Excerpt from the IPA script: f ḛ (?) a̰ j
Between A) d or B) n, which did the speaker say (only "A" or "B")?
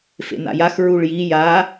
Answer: B